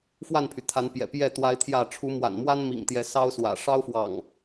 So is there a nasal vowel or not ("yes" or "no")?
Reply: no